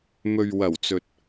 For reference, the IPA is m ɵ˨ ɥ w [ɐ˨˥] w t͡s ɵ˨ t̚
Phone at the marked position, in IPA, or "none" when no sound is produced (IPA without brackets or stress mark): ɐ˨˩